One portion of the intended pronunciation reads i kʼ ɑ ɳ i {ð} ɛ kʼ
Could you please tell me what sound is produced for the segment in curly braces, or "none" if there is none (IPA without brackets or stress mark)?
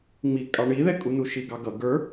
ð